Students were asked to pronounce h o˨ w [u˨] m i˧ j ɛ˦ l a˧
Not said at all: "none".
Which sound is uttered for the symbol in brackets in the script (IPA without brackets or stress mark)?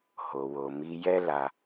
o˨